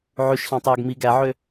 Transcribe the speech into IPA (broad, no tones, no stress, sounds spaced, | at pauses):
ʕ ʉ ʃ ɬ ɑ̃ tˤ øː ɡ m i ɡ æ ʕ ø